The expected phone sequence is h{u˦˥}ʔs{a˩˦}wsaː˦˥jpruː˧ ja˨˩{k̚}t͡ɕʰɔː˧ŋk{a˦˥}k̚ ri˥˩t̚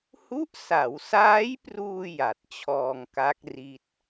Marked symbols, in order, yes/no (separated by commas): yes, yes, no, yes